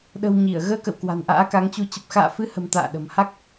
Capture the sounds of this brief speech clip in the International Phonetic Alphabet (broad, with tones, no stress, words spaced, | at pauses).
ɗə̤˨˩w ɲi˧˩ə̯ ɣəː˧kə̰˧˨wkwa̤˨˩n ʔa̰ː˧˥ka˨˦ŋt͡ɕu˧ t͡ɕə˨˩p̚xa̰ː˧˨fɨ˨˦hə̤˨˩m t̪a̰ː˧˨ɗə̤˨˩mha˦˥k̚